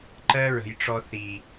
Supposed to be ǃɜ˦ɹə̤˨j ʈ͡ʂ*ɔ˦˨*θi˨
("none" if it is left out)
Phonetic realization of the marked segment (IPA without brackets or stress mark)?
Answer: ɔ˦